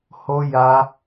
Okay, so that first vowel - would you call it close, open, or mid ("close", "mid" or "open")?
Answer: mid